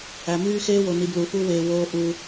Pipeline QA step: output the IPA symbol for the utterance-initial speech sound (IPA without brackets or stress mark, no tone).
æ